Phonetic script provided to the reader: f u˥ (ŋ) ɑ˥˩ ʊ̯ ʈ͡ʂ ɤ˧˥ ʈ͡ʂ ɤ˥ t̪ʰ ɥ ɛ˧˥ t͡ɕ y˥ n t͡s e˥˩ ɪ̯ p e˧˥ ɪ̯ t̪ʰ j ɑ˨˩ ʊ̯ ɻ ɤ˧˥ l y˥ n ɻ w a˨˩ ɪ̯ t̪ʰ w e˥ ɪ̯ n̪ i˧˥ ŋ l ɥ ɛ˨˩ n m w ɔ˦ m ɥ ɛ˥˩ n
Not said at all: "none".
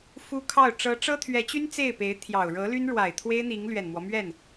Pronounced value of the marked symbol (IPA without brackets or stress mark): kʰ